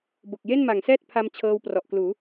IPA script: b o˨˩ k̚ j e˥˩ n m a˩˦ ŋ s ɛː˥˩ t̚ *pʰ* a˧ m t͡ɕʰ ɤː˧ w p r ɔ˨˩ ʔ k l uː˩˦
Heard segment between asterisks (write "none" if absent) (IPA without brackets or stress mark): pʰ